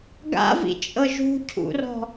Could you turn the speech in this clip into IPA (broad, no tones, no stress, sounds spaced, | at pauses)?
ɡ a̰ v ḭ t͡ʃʼ ɤ ʒ ṳ cʰ ṵ r ɔ̤